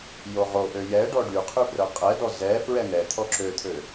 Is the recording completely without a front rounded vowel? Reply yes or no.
no